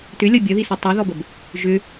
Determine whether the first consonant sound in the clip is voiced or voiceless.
voiceless